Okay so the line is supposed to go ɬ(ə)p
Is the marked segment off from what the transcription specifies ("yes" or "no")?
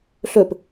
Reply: yes